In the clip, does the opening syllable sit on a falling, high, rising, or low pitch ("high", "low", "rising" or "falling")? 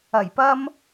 low